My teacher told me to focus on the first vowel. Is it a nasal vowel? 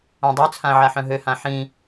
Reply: yes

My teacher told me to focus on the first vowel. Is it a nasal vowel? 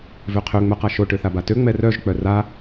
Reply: no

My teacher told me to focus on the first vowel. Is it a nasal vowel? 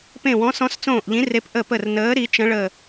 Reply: yes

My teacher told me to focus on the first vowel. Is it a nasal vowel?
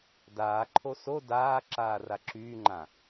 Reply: no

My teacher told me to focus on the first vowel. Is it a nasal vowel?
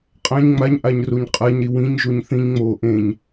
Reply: yes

